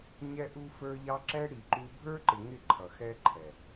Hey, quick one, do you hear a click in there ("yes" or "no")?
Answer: yes